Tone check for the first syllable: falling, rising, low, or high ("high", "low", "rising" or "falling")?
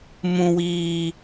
low